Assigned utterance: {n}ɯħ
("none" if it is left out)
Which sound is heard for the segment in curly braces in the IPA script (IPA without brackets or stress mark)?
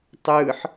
tˤ